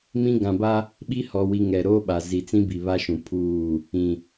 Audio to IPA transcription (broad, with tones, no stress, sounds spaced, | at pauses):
m ĩ˦ ɡ ã˨ b a˦ | ɓ i˦ h ɔ˨ w i˨ ŋ ɛ˨ ɾ oː˦ ɓ a˨ z i˨ t͡s ĩ˦ b i˨ β a˦ ʃ ũ˨ pʰ uː˦˨ | ĩ˨